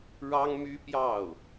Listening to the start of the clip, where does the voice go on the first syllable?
high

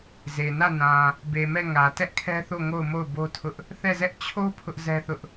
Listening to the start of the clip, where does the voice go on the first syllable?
low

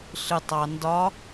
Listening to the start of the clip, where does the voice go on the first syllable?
low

